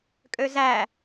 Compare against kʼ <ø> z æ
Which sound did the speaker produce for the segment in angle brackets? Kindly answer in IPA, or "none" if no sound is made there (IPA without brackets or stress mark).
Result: ø